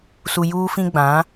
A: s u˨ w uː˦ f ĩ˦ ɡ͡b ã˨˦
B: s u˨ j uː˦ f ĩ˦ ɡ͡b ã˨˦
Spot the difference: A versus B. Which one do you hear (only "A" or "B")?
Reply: B